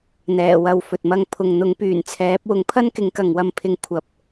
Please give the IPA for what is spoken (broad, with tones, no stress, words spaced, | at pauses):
n̪ɛː˨˩wɐ˨wfɵ˨t̚mɐ˧ŋ pʰʊ˨ŋ n̪ʊ˨˥ŋpyː˨˩nt͡sʰɛː˨˥p̚ wʊ˨˥ŋpʰɐ˥nkɪ˨˥ŋ kɐ˨ŋwɐ˧mpʰɪ˧ŋ kʷʰɐ˧p̚